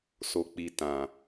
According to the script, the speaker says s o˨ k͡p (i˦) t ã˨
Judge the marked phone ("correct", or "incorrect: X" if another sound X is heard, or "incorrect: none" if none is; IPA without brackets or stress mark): incorrect: i˨